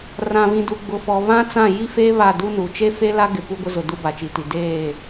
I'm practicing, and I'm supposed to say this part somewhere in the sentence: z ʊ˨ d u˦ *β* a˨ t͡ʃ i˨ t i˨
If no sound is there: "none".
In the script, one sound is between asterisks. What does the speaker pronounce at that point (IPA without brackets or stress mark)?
b